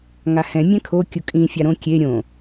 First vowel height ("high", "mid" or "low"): low